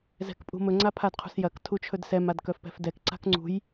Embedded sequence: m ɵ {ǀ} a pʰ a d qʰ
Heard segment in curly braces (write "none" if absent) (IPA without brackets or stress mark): ŋ͡ǀ